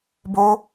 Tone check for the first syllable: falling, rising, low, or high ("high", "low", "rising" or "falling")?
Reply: high